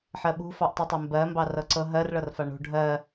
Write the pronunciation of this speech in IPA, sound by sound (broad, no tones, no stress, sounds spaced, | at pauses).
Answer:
ħ ɜ ɓ ṳ f ɑ ʔ tˤ y tˤ ɛ m b ɜ m b ɑ r ɤ ǀ ɤ ɦ ɜ r ɭ ɤ r f a ɳ ṳ ɖʱ ɜ